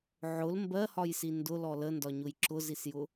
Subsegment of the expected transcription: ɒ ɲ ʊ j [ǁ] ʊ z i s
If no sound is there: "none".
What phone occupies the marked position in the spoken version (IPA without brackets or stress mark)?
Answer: ǁ